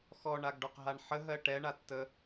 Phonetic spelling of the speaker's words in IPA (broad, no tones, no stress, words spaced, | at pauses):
xɔɳaɡɖɔqɦaɳ ħəɦɜ ʈɛɳatːə